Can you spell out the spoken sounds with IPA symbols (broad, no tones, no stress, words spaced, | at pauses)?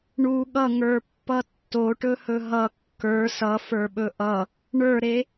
ɳu ɠʌŋə˞pːʌ tːoʈɵhɵ ɦʌ kːə˞ sʌfə˞ɓɵ ʔʌ | ɳə˞ɾe